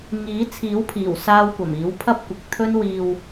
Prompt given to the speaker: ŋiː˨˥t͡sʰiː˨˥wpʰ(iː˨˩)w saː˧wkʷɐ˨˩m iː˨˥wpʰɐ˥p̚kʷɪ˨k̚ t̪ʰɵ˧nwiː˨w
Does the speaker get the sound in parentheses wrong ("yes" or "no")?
no